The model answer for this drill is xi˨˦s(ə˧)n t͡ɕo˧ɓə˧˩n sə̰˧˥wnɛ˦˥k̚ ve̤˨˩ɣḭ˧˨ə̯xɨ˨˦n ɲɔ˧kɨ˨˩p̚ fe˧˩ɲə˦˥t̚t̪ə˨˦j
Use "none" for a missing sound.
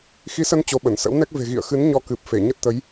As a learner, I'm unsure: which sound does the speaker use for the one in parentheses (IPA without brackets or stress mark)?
ə˧